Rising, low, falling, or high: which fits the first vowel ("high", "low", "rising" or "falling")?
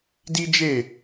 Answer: high